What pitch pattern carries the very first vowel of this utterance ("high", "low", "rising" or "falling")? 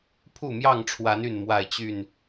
falling